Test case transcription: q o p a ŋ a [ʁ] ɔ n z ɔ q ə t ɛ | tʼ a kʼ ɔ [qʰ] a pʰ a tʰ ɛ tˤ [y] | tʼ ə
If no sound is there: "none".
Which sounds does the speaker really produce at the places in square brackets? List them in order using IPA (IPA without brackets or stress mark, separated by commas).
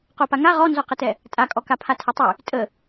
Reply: ʁ, k, y